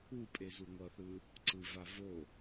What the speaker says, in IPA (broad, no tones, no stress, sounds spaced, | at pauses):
u pʼ e z u ŋʷ ʌ θ ɯ | ǀ ɯ v a v o